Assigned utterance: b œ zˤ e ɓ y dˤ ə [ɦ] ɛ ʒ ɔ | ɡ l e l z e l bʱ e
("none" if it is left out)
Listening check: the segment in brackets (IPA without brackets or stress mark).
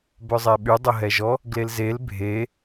ɦ